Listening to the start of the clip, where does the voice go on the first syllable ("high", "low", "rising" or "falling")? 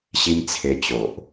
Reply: high